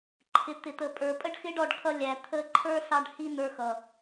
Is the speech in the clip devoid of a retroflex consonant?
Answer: no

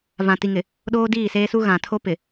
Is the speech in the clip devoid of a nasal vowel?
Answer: no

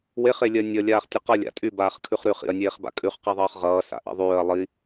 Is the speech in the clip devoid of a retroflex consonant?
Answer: yes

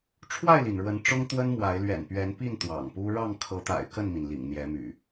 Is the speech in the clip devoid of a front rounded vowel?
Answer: no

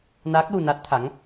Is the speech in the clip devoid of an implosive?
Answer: yes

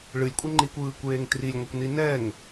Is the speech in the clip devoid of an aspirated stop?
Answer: yes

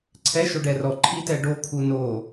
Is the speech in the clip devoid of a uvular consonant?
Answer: yes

